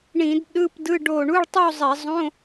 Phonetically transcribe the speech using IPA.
ɳ ĩ˧˩˧ d ɗ ɯ˧˥˧ p d ɯ˧˥˧ ɖ o˧˩ ɳ u˧˥˧ ɭ tˤ u˥˧ zˤ ɛ˧˩˧ zˤ õ˧˥˧

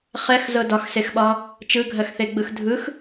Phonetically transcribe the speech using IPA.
χ ɛ x z ɤ d ɒ x s e x ɓ ɒ | t͡ʃ ɯ ɡʱ ɜ x θ e ɡ͡b ɯ x dʱ ɯ x

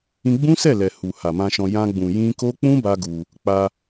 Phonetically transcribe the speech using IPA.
ĩ˧ ɡ͡b ũ˦ s ɛ˦˨ l ɛ˨ h u˨ h a˨ m ã˧ ʃ ɔ̃˧ j ã˧ ɡ͡b ũ˨ j ĩ˧ k o˦ k͡p ũ˦ b a˦ ɡ u˧ | k͡p a˧

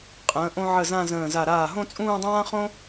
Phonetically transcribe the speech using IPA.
qʼ ə̃ː˩˧ ʔ õ˧ ʕ ə˧˩ z ã˥˧ z ə̃ː˧˩ z a˧˩ ɾ aː˧˩ ɦ õ˥˧ t͡sʼ ũː˥˧ dˤ ãː˥ χ õ˥

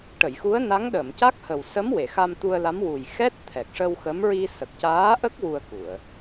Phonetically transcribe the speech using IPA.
ʈ ə˨˩˨ j x u˧˥ ə̯ n a˧˥ ŋ ɗ ə˨˩˨ m c a˦˥ k̚ h ə˨˩ w s ə˧˥ m w e˨˩˨ x a˧ m t̪ u˧ ə̯ l a˧˥ m w u˨˩ j x ɛ˦˥ t̚ t̪ʰ ɛ˨˩ k̚ ʂ ə˧ w x ə˧˥ m ɹ i˧ s ə˨˩ k̚ c aː˧˥ ʔ ə˦˥ k̚ w u˧ ə̯ k u˨˩˨ ə̯

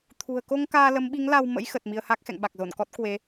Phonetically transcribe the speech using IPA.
t̪ʰ ṳ˨˩ ə̯ k o˧ ŋ k aː˧ l ə˨˦ m ɓ i˨˦ ŋ l a˧ w m ə̰˧˥ j x ə˨˩ t̚ m i˧ ə̯ h a˦˥ k̚ x ɛ̰˧˨ ŋ ɓ a˨˩ k̚ z o˧˩ n k ɔ˦˥ t̚ k w e˨˦

